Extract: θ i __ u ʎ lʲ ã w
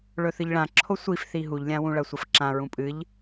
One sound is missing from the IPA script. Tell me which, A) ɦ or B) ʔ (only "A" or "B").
A